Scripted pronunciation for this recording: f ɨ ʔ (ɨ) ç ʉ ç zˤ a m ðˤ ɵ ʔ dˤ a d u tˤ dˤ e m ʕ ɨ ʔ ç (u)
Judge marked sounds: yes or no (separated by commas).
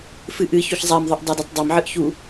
yes, yes